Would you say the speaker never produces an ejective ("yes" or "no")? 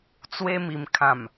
yes